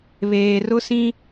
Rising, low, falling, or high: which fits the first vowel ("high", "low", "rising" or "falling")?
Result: low